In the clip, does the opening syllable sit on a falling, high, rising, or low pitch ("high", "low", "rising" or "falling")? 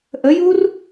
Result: rising